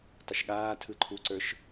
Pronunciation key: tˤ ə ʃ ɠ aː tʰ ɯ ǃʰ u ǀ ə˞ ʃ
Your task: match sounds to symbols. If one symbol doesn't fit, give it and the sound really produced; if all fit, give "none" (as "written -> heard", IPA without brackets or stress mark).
none